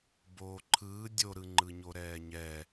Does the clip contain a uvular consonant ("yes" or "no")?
no